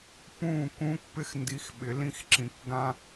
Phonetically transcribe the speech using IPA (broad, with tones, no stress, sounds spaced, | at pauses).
p ũ˥˩ k ũː˥ k p ɪ˥ x n d i˧ x ɓ ɪ˩˥ l ĩ˧ x ǁ ĩ˩ k ɡ ã˥